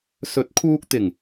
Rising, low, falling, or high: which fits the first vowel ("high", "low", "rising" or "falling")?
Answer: rising